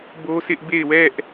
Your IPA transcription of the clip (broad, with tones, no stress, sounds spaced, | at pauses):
b o˦ s ɪ˦ ʔ b e˦˨ ɪ̯ w ɛ˦ ʔ